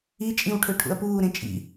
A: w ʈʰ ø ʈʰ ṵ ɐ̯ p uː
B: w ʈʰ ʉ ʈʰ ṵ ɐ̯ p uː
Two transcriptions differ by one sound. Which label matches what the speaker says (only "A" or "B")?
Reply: A